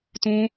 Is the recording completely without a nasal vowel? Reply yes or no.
no